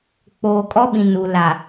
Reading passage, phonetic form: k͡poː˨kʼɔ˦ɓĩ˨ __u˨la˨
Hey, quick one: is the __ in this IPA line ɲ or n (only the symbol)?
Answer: n